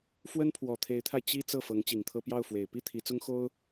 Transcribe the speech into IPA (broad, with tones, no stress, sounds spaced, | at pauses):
f w ə˥ n pʰ w ɔ˨˩ t̪ʰ e˧˥ ɪ̯ t̪ʰ a˧ ɪ̯ t͡ɕ i˥ t͡s ɤ˥˩ f ɤ˧˥ ŋ t͡ɕ i˨˩ ŋ t̪ʰ ɤ˥ p j ɑ˥˩ ʊ̯ f w e˨˩ ɪ̯ p i˥˩ t̪ʰ i˧˥ t͡s ʊ˥ ŋ x o˥ ʊ̯